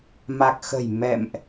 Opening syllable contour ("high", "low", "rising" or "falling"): low